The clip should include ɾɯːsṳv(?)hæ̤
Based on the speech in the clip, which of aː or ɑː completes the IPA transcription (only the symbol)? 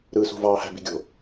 ɑː